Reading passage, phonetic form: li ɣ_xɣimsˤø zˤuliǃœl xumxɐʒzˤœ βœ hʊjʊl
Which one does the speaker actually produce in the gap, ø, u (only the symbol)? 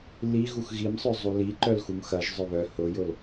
u